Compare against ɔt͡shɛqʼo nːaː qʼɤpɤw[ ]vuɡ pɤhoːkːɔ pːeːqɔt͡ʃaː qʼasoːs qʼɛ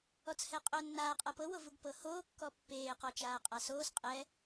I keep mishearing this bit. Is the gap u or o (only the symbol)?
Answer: o